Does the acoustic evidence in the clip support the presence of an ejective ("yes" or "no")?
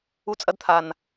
yes